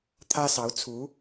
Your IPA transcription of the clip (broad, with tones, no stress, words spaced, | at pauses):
t̪ʰä˥sɑ˧˥ʊ̯t͡sʰu˧˥